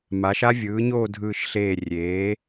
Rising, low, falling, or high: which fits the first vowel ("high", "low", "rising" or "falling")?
rising